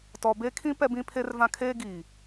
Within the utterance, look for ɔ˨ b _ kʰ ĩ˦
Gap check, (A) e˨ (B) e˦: B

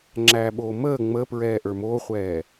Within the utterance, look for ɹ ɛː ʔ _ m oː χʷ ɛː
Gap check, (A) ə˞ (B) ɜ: A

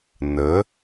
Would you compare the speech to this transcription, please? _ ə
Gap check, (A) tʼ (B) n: B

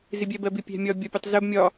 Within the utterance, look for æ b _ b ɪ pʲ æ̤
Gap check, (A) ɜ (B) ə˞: A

